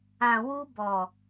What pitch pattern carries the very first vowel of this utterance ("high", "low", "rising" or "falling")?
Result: low